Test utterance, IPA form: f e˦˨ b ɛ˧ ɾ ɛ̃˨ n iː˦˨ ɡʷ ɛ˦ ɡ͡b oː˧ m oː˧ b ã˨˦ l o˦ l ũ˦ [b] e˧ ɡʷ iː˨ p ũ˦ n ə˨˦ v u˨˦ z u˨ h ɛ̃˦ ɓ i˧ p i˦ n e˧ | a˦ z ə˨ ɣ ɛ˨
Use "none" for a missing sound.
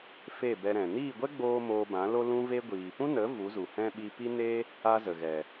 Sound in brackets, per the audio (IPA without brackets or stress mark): v